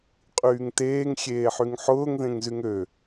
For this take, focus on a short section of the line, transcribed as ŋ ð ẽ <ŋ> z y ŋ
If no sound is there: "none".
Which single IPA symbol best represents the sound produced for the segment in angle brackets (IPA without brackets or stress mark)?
ŋ